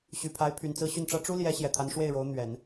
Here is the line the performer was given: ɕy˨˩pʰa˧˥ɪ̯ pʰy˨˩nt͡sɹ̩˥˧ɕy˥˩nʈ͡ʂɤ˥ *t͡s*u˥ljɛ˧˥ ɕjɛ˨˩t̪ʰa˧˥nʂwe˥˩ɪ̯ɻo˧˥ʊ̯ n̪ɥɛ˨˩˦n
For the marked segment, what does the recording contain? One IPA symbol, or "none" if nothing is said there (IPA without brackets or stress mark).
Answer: ʈ͡ʂ